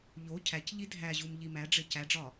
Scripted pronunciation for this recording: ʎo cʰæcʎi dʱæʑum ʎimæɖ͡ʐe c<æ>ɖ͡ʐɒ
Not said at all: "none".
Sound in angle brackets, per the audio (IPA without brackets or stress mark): æ